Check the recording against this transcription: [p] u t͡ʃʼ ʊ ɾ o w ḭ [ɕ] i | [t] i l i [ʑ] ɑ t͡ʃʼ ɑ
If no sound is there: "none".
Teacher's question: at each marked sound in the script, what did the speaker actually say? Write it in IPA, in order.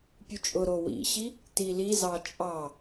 pʲ, ɕ, t, z

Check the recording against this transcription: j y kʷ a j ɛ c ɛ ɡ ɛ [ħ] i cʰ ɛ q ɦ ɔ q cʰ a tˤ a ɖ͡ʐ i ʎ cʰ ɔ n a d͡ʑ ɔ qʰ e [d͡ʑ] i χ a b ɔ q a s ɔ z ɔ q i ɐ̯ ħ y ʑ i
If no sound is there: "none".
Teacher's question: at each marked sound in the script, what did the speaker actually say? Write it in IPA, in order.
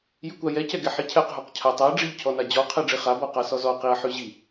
ħ, ɖ͡ʐ

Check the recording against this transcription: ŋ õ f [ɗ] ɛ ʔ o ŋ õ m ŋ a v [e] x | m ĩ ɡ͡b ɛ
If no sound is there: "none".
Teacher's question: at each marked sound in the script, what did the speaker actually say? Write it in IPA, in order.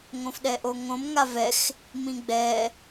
ɗ, ɛ

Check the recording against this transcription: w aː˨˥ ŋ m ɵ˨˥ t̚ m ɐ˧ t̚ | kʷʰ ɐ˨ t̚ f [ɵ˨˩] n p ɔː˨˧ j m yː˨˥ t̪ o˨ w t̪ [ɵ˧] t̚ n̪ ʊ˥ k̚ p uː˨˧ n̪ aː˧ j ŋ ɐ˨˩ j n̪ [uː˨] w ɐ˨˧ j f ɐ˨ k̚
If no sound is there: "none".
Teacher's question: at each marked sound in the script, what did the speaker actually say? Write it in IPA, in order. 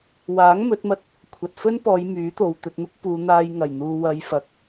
ɵ˥, ɵ˧, uː˨

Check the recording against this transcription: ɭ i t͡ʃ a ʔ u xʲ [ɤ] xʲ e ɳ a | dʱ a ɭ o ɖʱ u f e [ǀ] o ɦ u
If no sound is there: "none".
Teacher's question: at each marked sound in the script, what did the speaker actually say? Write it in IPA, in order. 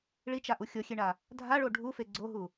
ɤ, ɡ͡ǀ

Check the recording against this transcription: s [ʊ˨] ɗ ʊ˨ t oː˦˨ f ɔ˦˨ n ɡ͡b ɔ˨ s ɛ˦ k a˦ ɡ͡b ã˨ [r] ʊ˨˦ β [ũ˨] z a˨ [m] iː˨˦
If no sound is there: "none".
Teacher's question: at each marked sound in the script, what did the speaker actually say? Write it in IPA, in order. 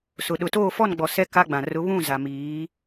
ʊ˨, r, ũ˦˨, m

